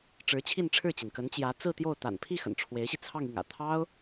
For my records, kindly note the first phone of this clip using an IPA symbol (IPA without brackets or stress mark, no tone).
ʈ͡ʂ